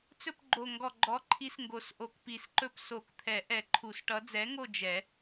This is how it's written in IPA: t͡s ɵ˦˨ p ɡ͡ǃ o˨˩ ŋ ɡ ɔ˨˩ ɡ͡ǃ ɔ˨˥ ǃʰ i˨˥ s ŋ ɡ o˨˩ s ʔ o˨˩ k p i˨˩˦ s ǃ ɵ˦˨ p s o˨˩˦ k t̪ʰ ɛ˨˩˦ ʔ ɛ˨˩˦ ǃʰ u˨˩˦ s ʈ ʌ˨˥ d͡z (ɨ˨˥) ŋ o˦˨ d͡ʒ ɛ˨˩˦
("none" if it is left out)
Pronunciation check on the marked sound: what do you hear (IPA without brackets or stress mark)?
ɛ˨˥